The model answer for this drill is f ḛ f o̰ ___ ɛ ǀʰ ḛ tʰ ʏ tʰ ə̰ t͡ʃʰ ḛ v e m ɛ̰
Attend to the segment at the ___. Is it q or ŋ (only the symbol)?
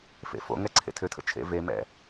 ŋ